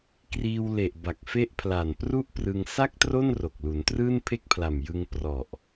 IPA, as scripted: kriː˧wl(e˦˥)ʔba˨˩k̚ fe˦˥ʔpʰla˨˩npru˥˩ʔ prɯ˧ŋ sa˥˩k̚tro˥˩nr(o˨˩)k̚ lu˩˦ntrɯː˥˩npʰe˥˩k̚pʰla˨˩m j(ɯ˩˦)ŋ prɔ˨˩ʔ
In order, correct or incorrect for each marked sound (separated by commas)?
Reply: incorrect, correct, incorrect